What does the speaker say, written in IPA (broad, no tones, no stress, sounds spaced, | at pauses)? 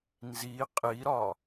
n z i qʼ i ɾ ɒ